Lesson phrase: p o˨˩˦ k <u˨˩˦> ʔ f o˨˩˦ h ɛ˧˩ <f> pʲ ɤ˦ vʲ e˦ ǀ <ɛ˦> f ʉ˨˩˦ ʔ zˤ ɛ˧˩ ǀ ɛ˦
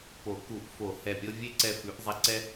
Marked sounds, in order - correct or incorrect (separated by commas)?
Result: correct, incorrect, incorrect